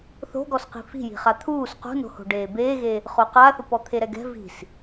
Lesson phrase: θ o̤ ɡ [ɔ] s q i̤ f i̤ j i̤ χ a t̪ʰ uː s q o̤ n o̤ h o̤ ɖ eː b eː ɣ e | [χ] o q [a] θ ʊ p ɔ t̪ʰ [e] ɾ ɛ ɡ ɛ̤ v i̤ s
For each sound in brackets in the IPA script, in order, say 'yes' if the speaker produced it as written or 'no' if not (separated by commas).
yes, yes, yes, yes